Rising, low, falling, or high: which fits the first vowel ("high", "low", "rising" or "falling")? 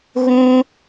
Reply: low